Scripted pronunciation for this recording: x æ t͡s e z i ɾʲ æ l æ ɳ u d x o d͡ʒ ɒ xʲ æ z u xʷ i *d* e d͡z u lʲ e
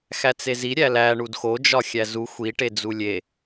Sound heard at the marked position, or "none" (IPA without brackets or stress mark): ʈ